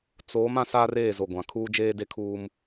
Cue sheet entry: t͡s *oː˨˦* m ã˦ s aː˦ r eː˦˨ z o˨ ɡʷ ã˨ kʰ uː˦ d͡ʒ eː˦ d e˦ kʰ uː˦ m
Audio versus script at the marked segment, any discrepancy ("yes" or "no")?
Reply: no